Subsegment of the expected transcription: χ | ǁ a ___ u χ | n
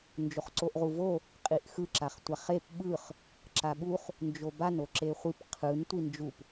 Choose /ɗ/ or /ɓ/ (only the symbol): ɓ